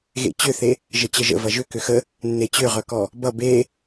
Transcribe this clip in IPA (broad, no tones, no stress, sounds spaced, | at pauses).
ɣ ḛ t͡ɕ ʏ θ e | ʒ ə t͡ɕ ə ʒ ə̰ v ɐ ʒ ʏ k ʏ x ə | nː e t͡ɕ ʏ ʁ œ k ɔ | b ʌ b e